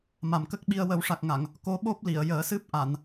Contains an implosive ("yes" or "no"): yes